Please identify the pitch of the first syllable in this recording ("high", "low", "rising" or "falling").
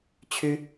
high